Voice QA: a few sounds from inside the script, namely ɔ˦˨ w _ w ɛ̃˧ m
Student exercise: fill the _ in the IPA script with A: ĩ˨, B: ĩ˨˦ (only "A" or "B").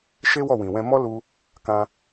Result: A